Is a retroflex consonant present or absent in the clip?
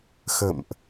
absent